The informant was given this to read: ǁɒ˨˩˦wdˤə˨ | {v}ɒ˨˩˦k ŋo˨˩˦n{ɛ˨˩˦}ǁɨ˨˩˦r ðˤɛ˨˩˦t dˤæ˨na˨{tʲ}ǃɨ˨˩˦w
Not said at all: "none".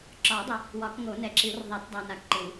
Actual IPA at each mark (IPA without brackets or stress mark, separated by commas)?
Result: w, ɛ˨, k